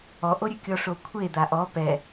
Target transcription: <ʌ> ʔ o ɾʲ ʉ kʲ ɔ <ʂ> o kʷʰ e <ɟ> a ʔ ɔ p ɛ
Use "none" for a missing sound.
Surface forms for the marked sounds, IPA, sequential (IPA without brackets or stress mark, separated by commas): ɔ, ʂ, d̪